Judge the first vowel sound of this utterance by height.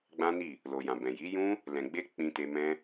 low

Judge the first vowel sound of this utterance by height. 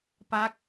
low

